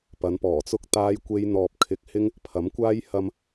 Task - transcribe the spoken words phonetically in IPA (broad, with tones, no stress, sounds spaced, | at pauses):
p ɐ˨˧ n p ɔː˨˩ t͡s ʊ˥ k̚ t̪ aː˥ j kʷ e˥ j n̪ ɔː˧ p̚ kʰ ɪ˨˥ k̚ h ɪ˥ ŋ | pʰ ɐ˨˥ m kʷ aː˥ j h ɐ˧ m